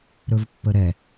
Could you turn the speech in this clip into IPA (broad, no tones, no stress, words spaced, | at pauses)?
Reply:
ɾɵvpːəɾɛ